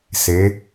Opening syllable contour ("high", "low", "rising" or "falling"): rising